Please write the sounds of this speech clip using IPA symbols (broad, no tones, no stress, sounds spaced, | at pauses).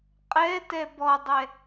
qʼ ɛ t ɛ b ɔ dˤ ɛ